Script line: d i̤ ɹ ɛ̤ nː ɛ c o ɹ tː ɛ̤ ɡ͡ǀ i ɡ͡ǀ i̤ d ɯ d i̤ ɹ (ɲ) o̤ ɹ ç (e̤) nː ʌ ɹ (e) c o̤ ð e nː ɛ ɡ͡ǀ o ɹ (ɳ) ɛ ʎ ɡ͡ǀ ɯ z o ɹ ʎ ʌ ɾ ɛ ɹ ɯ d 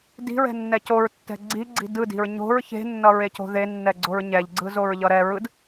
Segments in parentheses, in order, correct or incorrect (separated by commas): correct, correct, correct, incorrect